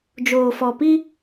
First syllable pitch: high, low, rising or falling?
low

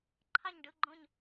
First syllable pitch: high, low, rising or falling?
falling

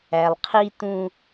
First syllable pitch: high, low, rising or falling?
low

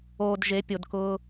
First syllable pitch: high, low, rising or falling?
low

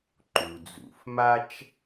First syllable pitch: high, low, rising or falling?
low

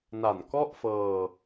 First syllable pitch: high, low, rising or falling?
low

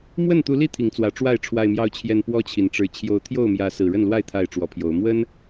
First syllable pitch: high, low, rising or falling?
falling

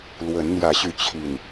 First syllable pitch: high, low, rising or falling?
rising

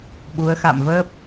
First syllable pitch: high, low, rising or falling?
rising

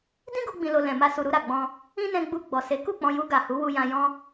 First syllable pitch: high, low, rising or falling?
high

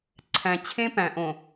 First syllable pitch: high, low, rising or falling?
low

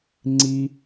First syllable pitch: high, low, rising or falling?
high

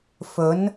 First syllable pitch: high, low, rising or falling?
rising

